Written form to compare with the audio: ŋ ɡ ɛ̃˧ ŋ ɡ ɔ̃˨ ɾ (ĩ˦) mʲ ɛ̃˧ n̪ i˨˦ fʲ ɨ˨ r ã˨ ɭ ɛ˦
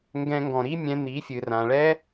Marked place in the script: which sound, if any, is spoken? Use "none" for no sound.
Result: i˦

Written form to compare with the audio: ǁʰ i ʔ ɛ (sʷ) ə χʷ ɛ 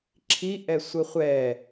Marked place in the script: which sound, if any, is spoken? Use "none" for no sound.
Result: sʷ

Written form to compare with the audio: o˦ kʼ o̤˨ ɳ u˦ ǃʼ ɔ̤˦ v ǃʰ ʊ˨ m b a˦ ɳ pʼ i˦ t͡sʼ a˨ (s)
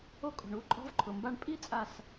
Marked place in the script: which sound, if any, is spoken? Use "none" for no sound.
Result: s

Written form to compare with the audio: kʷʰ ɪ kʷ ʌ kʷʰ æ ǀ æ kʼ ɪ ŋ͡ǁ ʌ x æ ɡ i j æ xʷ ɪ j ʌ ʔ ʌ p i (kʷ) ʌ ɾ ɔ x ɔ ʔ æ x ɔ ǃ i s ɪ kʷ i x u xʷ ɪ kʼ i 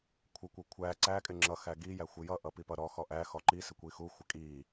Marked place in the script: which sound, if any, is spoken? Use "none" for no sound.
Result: p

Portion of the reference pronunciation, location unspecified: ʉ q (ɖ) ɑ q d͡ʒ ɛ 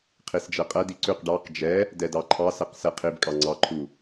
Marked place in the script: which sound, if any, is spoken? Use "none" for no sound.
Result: ɖ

